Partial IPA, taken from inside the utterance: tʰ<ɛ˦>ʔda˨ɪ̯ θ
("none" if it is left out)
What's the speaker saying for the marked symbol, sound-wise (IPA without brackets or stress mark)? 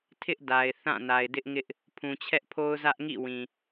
ɪ˦